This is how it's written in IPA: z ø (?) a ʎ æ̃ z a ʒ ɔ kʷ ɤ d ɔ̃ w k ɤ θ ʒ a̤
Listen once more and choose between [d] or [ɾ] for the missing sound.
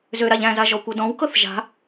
ɾ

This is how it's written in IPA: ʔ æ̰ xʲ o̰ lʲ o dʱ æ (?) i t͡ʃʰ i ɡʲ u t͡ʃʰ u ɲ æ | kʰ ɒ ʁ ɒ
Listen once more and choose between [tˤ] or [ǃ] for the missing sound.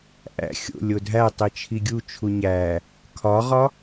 tˤ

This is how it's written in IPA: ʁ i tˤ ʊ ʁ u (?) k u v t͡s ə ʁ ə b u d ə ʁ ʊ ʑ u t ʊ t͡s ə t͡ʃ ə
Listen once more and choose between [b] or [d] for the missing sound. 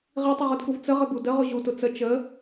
d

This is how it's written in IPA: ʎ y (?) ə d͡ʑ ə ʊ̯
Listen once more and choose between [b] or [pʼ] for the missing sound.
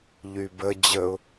b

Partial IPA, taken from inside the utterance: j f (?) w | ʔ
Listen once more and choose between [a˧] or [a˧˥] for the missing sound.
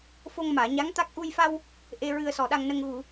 a˧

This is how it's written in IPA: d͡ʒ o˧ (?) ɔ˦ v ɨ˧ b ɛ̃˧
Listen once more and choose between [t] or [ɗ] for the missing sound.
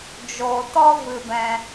t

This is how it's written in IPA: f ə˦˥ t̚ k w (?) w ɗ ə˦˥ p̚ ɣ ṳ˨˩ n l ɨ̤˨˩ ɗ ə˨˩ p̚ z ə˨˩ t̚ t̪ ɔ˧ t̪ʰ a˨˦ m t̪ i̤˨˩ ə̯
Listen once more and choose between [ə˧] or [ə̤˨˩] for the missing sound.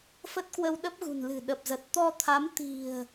ə˧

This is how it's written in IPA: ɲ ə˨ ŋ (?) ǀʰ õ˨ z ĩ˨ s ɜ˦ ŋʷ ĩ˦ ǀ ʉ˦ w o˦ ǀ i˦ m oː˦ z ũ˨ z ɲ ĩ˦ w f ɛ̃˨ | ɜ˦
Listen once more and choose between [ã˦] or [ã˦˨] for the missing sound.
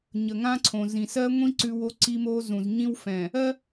ã˦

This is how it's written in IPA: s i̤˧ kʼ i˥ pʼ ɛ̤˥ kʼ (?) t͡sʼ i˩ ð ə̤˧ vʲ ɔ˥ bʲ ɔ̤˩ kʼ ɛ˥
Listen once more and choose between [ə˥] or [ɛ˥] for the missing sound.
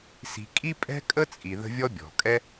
ə˥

